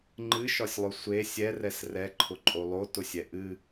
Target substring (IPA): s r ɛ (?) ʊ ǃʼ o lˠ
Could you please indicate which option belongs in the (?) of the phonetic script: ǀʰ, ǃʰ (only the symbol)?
ǃʰ